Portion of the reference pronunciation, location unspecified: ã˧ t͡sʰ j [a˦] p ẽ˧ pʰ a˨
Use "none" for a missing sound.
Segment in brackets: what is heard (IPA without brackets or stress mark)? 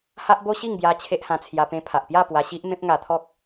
a˧